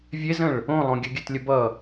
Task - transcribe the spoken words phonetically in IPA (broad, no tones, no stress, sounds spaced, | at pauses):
vʲ e z ə̃ ɭ | õ lˠ õ ɡʲ ə ɡʲ œ t lʲ ə b ʌ